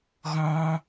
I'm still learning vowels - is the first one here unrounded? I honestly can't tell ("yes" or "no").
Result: no